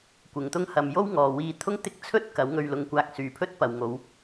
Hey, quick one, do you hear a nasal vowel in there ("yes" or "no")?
no